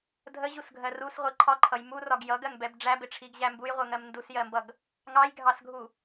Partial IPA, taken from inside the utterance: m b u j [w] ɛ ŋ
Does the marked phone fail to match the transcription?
yes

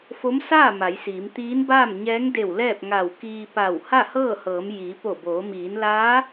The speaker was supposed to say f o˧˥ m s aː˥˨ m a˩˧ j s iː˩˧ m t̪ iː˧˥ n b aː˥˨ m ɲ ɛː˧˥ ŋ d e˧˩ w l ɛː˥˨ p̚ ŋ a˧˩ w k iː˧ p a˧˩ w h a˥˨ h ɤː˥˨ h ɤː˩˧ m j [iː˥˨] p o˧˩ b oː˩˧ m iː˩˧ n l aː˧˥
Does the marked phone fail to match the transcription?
yes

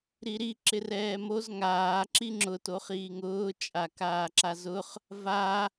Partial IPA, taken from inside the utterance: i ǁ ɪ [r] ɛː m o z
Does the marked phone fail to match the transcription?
no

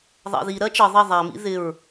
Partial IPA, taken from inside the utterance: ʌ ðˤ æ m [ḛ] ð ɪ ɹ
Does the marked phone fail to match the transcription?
yes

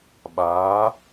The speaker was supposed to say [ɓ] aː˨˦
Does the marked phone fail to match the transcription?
no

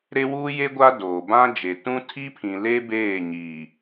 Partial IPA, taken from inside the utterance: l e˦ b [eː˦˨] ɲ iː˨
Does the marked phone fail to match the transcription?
no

